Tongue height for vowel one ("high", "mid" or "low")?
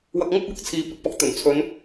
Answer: low